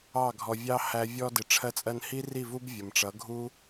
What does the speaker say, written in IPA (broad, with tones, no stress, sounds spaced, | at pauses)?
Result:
ɑ˦˨ ɡʱ ɔ˧ vʲ ɑ˦ h æ˧ vʲ ɔ˧ d ɪ˨ ʈ͡ʂʰ ɜ˧ t͡sʼ ɜ˧ n h i˦ r i˦˨ v u˦ b vʲ ʌ˨ m ʈ͡ʂ ʌ˨˦ ɡʱ u˦